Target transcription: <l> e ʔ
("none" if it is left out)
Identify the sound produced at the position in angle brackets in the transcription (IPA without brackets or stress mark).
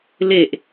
l